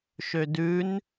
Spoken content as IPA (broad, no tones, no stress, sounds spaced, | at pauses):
ʃ ø d ʉ n